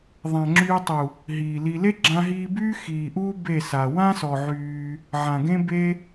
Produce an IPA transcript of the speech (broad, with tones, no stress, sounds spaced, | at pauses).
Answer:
ðˤ ã˨ ŋ͡ǁ yː˧ tˤ u˨ | ɦ iː˨ l i˧ l e˦ ɡ͡ǁ ã˧ ɦ iː˧ b yː˦ x iː˨ ʔ uː˦ b e˦˨ s a˨ w ã˦ s ɔ˨ ʕ yː˧ | ʕ ã˨ ɡ ẽ˦ b e˦